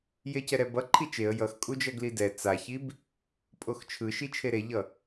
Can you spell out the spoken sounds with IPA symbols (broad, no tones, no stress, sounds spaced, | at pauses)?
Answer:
j e c ɛ ɾ ɛ b ʌ ǃʰ i t͡ʃ e ə̯ j ʌ x kʼ u d͡ʒ ʌ ɡ l i d ɛ t͡s a ç i b | pʼ o x t͡ʃʰ ɯ ʃ i t͡ʃʰ e ɾ e ʎ ʌ